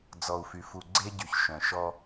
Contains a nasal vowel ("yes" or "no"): yes